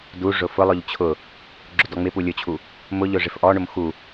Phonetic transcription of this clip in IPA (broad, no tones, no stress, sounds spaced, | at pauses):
d u ʐ ʊ f ʊ lˠ ʊ ʎ t͡ɕʰ ʊ | ɡ͡ǁ ʊ d ɔ ŋ͡m ɪ p u lʲ ʊ t͡ɕʰ u | m ʊ ʎ ʊ ʐ ɪ f ʔ ɔ ɳ ʊ m x u